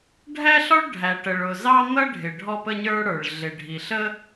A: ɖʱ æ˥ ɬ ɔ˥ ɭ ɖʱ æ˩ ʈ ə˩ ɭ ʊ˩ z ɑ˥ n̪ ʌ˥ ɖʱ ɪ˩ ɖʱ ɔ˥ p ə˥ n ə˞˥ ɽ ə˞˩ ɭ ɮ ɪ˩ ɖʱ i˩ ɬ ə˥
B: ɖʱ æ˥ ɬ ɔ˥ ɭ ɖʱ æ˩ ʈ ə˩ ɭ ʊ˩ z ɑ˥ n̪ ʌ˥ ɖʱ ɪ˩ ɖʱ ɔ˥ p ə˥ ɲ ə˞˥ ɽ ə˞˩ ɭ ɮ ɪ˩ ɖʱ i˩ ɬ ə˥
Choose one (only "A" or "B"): B